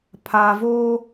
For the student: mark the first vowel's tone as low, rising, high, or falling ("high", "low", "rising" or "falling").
low